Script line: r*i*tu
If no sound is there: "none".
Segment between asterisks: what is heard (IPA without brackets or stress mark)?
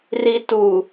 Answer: i